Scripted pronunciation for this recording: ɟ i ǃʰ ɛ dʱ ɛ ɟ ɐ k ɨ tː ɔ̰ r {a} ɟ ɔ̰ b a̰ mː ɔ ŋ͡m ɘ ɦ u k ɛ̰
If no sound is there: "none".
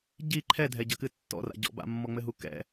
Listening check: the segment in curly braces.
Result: a̰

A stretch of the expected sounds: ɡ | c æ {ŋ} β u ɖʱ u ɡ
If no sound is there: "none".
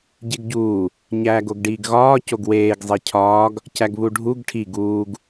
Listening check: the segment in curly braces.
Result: ɡ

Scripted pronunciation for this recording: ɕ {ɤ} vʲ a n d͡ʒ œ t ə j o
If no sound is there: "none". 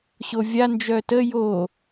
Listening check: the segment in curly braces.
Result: o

